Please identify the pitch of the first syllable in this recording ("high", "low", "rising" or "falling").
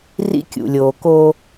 high